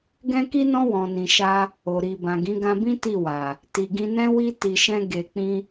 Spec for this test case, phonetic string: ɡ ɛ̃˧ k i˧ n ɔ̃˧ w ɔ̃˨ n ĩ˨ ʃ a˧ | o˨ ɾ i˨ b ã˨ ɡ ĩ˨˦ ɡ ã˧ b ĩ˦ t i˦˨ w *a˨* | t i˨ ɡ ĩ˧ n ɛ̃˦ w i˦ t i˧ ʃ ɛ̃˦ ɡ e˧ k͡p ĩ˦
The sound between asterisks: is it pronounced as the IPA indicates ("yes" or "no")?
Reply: yes